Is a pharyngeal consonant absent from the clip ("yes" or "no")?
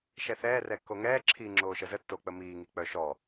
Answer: yes